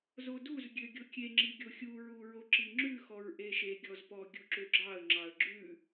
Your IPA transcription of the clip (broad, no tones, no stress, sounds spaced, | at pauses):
z o d u z ɡʲ ø ɡʲ o kʲ e ŋ͡ǁ i ɡʲ o xʲ u ɹ u ɹ o ǁ i ŋ͡ǁ ʉ x ɔ ɹ ʔ e ʃ e ɡʲ ɔ z p ɔ ɡʲ u ǁ ø ɡ͡ǁ ɑ ə̯ ŋ͡ǁ ɑ ə̯ ɡ͡ǁ ʉ